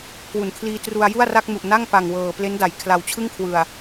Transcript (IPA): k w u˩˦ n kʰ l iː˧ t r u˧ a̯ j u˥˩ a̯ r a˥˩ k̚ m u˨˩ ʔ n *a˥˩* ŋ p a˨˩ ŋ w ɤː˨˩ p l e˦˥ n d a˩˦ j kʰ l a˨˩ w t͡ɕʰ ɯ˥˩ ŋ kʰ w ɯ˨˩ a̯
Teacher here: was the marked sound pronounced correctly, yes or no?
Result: yes